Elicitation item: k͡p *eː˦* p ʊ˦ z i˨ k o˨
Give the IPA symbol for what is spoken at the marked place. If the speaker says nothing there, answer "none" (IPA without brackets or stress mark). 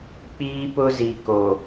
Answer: iː˦